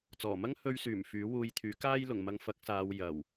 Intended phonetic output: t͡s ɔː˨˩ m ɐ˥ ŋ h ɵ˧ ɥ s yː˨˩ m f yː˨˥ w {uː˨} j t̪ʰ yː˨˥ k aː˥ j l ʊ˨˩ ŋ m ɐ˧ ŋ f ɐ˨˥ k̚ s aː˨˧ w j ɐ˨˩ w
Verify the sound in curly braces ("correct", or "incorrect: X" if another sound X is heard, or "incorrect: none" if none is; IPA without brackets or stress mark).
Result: incorrect: uː˧